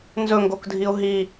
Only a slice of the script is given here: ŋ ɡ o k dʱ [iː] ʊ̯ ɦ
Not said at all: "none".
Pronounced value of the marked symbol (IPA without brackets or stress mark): i